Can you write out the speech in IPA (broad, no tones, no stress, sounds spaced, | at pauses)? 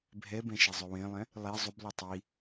bʱ ɛ b ɛ̃ ʃ e zˤ ø w ẽ lˠ ɛ̃ | lˠ i zˤ u b lˠ e tˤ i